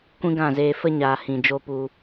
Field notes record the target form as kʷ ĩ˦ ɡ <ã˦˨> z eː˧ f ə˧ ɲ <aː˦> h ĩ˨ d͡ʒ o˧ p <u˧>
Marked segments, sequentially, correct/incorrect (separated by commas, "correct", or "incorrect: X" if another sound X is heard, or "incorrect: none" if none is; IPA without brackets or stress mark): correct, incorrect: aː˨, correct